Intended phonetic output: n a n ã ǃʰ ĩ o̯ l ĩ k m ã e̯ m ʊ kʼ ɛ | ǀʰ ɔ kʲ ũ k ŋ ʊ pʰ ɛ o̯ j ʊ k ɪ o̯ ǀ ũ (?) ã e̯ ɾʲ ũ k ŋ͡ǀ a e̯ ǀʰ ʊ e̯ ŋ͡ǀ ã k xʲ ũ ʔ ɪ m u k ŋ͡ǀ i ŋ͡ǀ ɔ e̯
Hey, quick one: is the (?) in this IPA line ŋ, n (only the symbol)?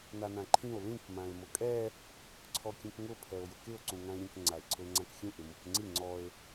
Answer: ŋ